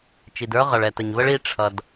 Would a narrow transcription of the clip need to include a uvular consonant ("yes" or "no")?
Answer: yes